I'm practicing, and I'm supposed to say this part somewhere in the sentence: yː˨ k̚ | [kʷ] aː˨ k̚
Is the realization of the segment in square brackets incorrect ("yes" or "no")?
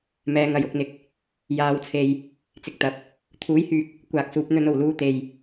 no